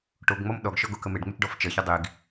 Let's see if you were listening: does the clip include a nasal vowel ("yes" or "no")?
no